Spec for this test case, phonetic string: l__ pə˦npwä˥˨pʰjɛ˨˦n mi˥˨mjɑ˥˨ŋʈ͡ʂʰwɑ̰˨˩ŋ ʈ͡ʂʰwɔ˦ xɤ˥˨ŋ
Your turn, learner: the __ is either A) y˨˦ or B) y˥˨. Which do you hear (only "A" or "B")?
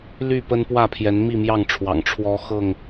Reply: B